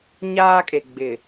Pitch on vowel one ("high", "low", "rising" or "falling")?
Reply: high